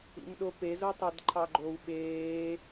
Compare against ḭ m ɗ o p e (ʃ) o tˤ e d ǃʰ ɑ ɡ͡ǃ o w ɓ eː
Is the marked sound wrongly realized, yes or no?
yes